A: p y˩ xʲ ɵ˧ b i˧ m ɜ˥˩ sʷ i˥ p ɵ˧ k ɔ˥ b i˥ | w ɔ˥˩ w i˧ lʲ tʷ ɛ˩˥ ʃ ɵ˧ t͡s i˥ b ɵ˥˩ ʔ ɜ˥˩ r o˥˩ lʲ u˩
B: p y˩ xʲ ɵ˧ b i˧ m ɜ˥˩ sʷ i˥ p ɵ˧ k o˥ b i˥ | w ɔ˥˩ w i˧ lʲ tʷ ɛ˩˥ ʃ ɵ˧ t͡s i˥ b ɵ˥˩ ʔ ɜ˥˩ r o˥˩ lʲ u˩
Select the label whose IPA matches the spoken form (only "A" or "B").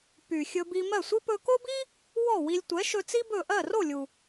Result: B